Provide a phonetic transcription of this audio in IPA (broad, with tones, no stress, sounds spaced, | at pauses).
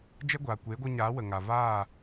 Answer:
d͡ʒ ɛ˦ ɡʷ aː˨ kʷ e˨˦ ɡʷ ɨ˧ ɲ aː˨˦ w ə˨ ŋ a˨ v aː˦˨